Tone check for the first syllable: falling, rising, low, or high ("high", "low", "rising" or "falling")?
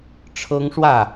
high